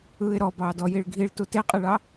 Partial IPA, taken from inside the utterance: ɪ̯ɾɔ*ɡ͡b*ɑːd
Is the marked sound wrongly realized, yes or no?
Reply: yes